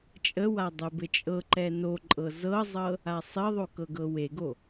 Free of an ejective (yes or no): no